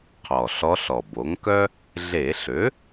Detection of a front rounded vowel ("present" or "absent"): present